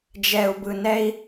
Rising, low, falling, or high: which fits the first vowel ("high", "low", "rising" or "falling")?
low